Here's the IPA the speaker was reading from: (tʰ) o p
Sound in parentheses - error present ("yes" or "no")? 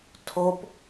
no